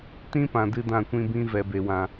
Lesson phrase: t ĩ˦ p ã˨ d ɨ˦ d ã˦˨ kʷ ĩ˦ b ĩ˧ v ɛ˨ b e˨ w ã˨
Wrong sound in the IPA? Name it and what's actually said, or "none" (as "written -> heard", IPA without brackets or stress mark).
none